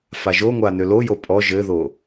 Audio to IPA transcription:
faʒoŋʷa nølojo pʼɔ ʒɘðo

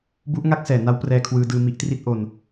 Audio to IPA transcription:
bu˦˥ʔŋa˥˩k̚sɛː˩˦ na˦˥wprɛː˧kʰwɯː˧dɯː˧ mi˦˥ʔtri˥˩t̚ʔo˧n

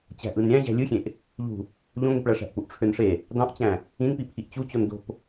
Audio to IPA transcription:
t͡ɕæ̤ʔɯnɾʲæ̃ ʑæ̤lʲɯxʲẽʔ | ʎṳ | ʎõŋepɭæʂæ̤ʔ puʔʈ͡ʂʰønʂe | dɑ̃ʔt͡ɕæ̃ | ĩnpi pʰiʔt͡ɕut͡ɕon do̤p

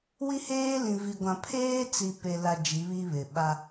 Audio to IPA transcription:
wi˦heː˦lĩ˨vi˨ ɡʷã˨pʰeː˦t͡si˨ pe˨la˨ d͡ʒi˨˦βi˦βɪ˨ ɓa˦

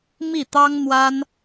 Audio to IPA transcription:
mi˥˩t̪ɑ˥ŋn̪wa˥n

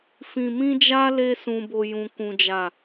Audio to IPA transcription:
fĩ˧mĩ˦d͡ʒa˦ le˦sũ˧bo˧ jũ˦kũ˦d͡ʒa˦˨

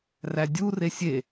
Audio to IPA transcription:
rædʲu resʲe

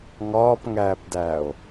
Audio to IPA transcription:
ŋɒːpŋæːpdæːo̯

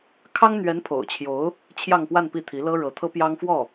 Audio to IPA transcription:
kʰɑ˥ŋn̪ɥɛ˧˥n pʰo̰˨˩ʊ̯t͡ɕʰjo˧˥ʊ̯ | t͡ɕʰjɑ˥˧ŋpwa˥˧npi˥˩t̪ʰi˧˥ lɤ˥ɻɤ˧˥ t̪ʰɤ˥pjɑ˥ŋfwɔ˥˩

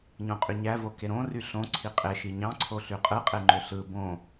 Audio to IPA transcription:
ɲõqʼyɲævo keɾõry ɬõ ǀʰiqʼeʃi ɲɑ̃ǀʰo ɬyqʼɯqʼeŋ͡ǃø ɬɯ bõ

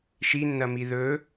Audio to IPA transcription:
ʃinːɐmi ðɵ

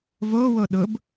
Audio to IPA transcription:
vowo ɗʊb

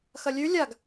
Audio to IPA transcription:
xɐlʲʉ lʲaɡ

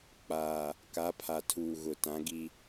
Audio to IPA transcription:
k͡paː˨ | ka˨˦pʰa˨tʰuː˨ ɣʊ˨ tã˨˦ɡi˦

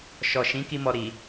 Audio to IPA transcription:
ʃɔ˨ʃĩ˨˦ ki˦mɔ˧ɾi˨

